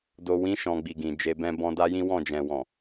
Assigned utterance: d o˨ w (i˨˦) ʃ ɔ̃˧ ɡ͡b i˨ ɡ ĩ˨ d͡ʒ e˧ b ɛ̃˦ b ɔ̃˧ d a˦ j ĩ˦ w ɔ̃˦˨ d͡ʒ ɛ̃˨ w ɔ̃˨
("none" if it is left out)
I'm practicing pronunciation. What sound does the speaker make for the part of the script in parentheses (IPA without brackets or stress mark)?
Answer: ĩ˨˦